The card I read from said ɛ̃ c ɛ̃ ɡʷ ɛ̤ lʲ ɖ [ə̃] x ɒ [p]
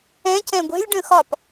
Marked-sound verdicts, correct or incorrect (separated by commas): correct, correct